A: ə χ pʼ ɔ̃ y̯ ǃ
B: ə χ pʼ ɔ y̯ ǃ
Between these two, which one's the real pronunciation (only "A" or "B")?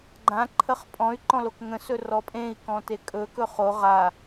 A